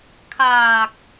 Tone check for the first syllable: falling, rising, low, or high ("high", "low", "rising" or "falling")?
low